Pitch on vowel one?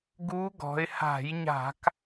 rising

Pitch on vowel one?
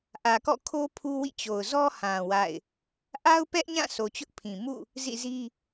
low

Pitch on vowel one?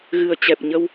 low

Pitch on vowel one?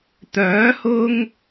rising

